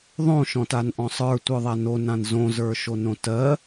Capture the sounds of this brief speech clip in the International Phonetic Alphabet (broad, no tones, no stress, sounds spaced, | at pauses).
ðˤ õ ʃ ɔ̃ t a n ʔ ɔ̃ sˤ ə˞ tʷ ə˞ ðˤ a n o n ã n z õ z ə˞ ʃ o n õ t ɜ